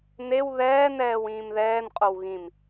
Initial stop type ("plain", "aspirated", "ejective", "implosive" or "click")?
ejective